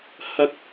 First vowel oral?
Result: yes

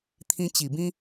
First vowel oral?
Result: no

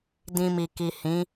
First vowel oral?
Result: no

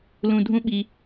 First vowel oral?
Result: no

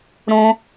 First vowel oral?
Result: no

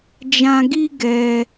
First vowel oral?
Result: no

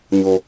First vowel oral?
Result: yes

